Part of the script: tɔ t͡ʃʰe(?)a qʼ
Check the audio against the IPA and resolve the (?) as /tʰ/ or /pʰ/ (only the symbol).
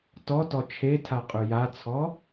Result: tʰ